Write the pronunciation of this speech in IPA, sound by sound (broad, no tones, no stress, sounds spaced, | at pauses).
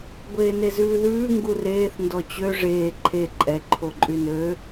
ɡʷ eː n e z ʉː ð ʉː ŋ ɡ u r eː θ n d ɔ t͡ɕ ø ʐ eː ǃʰ e ǃʼ ɛ ǃʰ o ǃʼ y n ø